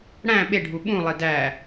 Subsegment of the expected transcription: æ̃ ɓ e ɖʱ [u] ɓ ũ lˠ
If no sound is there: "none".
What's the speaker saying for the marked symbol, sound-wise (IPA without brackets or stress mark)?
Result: u